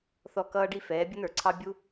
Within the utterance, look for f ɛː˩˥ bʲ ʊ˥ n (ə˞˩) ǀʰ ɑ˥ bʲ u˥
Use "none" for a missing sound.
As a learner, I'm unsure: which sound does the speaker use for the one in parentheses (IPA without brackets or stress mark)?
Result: ə˞˩